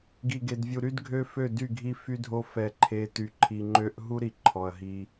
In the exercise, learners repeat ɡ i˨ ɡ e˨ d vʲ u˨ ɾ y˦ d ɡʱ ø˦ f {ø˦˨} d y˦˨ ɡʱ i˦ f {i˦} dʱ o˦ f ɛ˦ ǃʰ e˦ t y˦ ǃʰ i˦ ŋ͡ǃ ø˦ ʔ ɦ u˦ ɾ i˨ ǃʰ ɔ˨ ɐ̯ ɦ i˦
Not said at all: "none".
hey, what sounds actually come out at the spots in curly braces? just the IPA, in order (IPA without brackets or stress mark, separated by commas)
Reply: ø˦˨, y˦